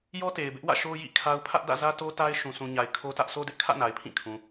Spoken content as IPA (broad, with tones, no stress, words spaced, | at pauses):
jɔ˦te˨ɪ̯bɪ˦ʔ wä̰˦˨ʃo˦ jḭ˦˨kʰa˦ʊ̯ pʰä˦ʔdä̰˦˨zä˦ to˦ta˦ɪ̯ ʃũ˨sʰũ˨ɲa˨ɪ̯ kʰo˦tä˦ʔ sʰo˦dɪ˦ʔkʰä̰˦˨ na˨ɪ̯pʰĩ˦˨kʰũ˨